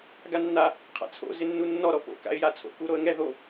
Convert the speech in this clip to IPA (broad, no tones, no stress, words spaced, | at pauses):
ɡanːa | qʰa̰t͡sʰo̰ zɪnːunːɔ ɾɔpo̰ ka̰ɪ̯jat͡sʰo̰ kuɾoə̯ŋɛ ðo